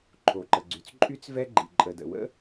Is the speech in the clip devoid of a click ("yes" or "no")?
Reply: no